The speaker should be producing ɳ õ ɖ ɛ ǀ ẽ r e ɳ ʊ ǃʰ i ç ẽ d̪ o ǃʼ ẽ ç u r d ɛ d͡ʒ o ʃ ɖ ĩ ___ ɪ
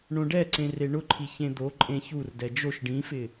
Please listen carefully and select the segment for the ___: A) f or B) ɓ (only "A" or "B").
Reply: A